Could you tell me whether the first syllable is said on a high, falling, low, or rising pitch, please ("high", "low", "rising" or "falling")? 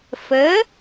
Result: rising